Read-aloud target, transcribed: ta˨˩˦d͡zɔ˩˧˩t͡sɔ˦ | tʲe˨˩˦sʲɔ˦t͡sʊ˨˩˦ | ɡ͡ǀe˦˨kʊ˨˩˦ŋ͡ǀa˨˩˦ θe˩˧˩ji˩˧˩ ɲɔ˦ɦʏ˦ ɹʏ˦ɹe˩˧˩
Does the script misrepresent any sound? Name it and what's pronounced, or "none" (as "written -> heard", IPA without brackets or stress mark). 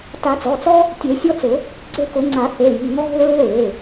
ɲ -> ŋ